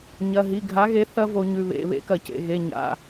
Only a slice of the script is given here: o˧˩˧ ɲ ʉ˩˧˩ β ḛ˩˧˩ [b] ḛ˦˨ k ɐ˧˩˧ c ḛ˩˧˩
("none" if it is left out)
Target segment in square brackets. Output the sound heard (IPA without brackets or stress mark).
β